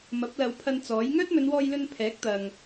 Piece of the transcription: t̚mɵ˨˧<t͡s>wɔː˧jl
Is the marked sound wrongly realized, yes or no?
yes